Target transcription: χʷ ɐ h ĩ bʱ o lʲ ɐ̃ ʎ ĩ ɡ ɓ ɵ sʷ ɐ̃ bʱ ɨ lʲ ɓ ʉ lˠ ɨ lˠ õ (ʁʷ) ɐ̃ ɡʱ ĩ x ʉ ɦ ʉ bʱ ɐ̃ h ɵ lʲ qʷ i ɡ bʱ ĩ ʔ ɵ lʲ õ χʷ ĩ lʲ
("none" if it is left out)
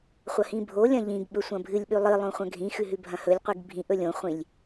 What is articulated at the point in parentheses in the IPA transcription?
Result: χʷ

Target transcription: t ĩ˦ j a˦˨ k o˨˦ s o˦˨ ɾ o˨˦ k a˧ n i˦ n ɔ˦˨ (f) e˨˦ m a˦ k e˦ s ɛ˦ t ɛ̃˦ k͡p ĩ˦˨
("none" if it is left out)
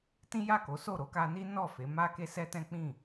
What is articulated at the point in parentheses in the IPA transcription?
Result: f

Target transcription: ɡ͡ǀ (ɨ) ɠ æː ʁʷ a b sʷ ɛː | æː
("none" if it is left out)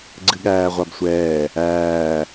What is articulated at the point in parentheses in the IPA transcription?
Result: ɨ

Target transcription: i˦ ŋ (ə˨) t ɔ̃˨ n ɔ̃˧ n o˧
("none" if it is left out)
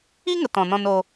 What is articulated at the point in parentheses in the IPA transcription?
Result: ə˨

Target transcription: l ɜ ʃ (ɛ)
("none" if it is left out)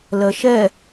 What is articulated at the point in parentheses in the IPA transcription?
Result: ɛ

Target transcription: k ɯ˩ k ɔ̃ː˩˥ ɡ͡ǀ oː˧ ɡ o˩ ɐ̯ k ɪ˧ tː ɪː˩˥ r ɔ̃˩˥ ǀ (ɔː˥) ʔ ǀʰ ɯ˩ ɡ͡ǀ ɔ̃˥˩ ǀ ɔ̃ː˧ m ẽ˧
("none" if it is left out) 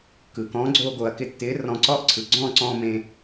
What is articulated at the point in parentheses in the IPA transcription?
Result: ɔː˥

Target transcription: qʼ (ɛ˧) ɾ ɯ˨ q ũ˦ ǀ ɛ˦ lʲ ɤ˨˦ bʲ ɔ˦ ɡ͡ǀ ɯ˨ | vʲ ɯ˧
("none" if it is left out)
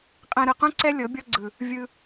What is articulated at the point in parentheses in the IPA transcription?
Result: ɛ̃˧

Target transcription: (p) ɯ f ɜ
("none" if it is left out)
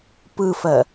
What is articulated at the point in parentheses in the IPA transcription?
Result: p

